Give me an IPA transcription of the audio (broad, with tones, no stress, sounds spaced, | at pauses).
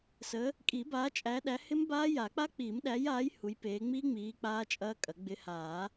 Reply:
s ə˨˦ | kʼ i˨˩˦ b aː˨˦ t͡ʃʼ æ˨˦ ɗ æ˨˦ h ɪ˦˥ m b aː˦˥ j a˨˩˦ k͡p a˦˥ k͡p iː˨˩˦ m ɗ æ˨˦ j aː˨˦ j h u˨˦ j p eː˨˦ ŋ͡m iː˦˥ ŋ͡m iː˨˦ k͡p aː˦˥ t͡ʃʼ ɐː˦˥ kʼ ɐ˨˩˦ ɡ͡b ɪ˨˦ h aː˨˩˦